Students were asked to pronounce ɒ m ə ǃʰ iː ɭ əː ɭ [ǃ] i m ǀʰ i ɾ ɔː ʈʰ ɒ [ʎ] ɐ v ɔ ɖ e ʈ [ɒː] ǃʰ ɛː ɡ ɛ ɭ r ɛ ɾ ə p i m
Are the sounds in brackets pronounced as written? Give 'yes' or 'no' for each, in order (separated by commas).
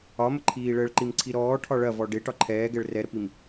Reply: yes, no, no